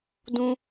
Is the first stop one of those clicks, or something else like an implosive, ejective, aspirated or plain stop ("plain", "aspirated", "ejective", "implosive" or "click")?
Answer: plain